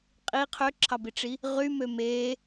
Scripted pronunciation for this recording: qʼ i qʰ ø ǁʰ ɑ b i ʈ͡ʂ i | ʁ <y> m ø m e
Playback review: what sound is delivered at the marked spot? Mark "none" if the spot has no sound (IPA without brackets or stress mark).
y